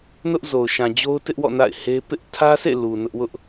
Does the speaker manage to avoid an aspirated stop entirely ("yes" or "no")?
no